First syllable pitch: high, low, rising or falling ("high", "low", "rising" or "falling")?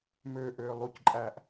low